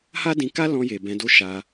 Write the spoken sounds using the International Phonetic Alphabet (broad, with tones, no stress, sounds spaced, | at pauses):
h a˦ d ĩ˧ k a˦ l ɔ̃˧ j e˨ b ɛ̃˨˦ d o˦ ʃ a˧